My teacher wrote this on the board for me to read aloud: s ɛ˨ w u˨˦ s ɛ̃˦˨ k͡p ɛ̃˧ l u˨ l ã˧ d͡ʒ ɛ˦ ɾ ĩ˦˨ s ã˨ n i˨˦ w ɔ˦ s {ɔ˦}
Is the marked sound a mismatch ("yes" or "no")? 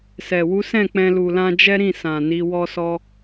no